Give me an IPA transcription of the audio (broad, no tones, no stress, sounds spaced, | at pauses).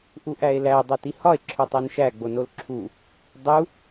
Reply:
ʔ u ʔ æ e̯ l æ dˤ o t i h ɒ e̯ ǁʰ o tˤ e n ʃ æ ɡ͡b o n o l ǁʰ u | dˤ u